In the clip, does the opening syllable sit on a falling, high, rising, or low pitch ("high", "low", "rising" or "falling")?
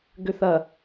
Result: low